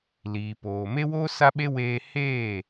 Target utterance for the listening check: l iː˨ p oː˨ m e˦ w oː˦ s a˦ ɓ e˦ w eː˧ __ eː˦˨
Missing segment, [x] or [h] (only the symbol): h